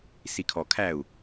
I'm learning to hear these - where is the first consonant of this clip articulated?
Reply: tongue tip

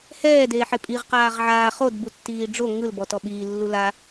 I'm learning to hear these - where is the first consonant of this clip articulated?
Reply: throat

